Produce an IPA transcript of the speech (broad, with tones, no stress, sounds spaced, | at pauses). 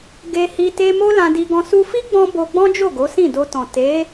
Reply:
ɡ e˧ h i˧ t e˧ m o˦ l ã˧ d i˧ ɡ ɔ̃˧ s u˧ f i˦ ɡ͡b ɔ̃˧ b o˧ ɡ͡b ɔ̃˦ d͡ʒ o˦˨ ɡ o˨˦ s ĩ˦˨ d o˧ t ɔ̃˨ t e˨˦